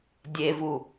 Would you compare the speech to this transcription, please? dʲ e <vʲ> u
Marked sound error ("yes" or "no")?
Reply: yes